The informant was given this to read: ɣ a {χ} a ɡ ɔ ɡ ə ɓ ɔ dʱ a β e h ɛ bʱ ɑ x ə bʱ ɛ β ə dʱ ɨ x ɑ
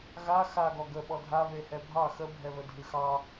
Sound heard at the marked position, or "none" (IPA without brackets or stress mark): x